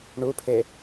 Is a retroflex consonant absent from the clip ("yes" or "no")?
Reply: no